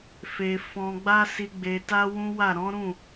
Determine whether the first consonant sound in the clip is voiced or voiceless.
voiceless